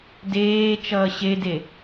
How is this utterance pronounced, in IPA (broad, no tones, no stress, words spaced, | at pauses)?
deː t͡ʃʌːɕede